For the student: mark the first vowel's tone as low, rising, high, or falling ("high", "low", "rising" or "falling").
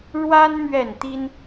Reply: high